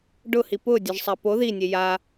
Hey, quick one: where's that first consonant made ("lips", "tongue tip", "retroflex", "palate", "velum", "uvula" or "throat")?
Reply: retroflex